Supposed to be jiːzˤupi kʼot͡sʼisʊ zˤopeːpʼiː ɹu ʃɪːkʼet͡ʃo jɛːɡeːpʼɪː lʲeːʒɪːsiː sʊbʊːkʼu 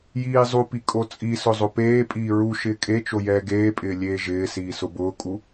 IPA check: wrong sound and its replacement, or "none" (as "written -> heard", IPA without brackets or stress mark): none